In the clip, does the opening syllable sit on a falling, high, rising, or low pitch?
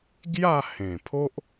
falling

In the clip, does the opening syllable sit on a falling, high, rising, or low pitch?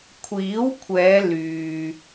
rising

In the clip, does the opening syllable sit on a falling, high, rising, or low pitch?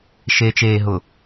low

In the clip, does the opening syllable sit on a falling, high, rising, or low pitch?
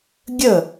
falling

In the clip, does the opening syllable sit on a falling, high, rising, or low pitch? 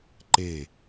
falling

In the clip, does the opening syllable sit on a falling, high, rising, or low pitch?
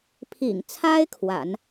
low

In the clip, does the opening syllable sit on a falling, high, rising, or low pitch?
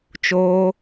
high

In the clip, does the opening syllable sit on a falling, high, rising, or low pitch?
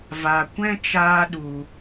low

